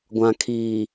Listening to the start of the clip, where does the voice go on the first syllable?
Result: low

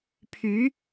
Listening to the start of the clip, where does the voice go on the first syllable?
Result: rising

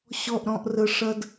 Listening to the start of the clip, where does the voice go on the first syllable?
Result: low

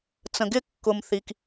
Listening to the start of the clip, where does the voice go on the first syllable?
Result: low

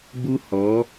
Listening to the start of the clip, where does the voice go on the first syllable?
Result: high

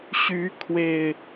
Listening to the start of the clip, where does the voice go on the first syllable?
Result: rising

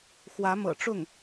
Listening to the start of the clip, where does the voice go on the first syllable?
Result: rising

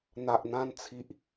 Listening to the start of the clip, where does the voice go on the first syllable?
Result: low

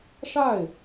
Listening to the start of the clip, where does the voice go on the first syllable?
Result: falling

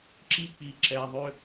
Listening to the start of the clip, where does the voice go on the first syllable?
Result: high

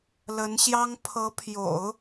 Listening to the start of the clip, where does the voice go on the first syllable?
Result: rising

